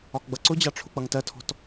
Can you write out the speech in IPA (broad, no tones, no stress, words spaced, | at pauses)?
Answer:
ɒkɡ͡bʌǀʊd͡ʑɑ ʈ͡ʂʰʊk͡pʌŋtɜtʰɔ̤t